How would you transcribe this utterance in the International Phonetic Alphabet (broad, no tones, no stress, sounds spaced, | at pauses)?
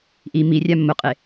ʔ i m i rʲ a mː ʊ qʼ e